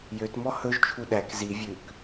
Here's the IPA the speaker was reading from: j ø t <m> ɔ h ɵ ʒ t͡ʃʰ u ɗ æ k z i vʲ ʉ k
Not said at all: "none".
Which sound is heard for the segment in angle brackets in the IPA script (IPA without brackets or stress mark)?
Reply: m